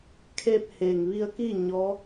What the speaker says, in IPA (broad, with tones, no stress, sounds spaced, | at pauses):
kʰ eː˧ p̚ h eː˩ ŋ ʋ i˧ ə̯ k iː˥˨ ɲ ɔː˧˥